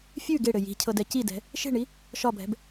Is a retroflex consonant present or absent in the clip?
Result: present